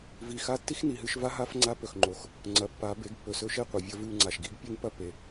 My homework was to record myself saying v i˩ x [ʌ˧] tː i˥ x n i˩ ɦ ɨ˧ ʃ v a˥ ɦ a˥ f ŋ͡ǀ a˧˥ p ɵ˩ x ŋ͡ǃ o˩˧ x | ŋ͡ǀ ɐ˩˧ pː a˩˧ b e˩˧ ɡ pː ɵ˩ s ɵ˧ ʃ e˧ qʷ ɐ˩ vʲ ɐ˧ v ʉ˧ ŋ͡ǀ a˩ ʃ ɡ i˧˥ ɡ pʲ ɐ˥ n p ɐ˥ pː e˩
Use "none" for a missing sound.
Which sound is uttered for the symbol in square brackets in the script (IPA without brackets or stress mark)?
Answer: a˧